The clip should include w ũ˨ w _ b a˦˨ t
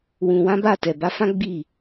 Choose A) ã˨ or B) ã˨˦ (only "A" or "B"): B